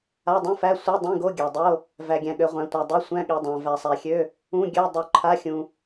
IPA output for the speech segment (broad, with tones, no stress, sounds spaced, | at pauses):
a˧˥˧ dˤ ũ˧˥˧ f æ˧˥˧ sʷ i˧˥˧ dˤ ĩ˧˥˧ ɡ o˧˥˧ ɡʲ æ˨ dˤ o˧˥˧ | v æ˨ ɡʲ æ̃˨ ɠ ø˨ ʁʷ æ̃˨ tʷ a˨ dˤ ø˧˥˧ sʷ æ̃˧˥˧ ɠ i˨ dˤ æ̃˨ v æ˨ sˤ æ˨ xʲ ø˧˥˧ | ũ˧˥˧ ɡʲ ø˧˥˧ dˤ u˨ ǃʰ a˧˥˧ xʲ ũ˨